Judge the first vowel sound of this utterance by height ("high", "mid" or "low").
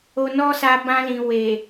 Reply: mid